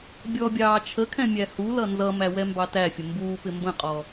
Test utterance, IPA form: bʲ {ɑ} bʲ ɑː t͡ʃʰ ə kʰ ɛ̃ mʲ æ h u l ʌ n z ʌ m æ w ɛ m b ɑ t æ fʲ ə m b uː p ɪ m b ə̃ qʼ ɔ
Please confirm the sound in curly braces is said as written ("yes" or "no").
no